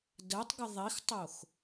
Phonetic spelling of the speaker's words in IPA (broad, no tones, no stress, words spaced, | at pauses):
dɜtˤɡə ðˤixtˤox